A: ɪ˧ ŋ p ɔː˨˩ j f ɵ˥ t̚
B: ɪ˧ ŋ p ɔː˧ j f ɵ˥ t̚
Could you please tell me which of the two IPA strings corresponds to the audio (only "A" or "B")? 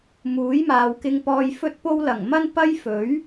B